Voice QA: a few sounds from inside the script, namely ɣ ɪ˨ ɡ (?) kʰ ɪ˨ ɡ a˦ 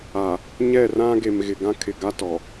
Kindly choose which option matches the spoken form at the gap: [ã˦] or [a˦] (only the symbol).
ã˦